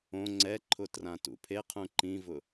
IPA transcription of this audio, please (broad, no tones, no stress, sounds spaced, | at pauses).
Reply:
õ ŋ͡ǀ ɛ ǃʰ ʊ t r ã t ṵ pʰ e qʰ ũ ǃ ĩ v ʊ